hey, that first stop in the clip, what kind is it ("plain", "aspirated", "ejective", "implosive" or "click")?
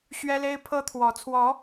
aspirated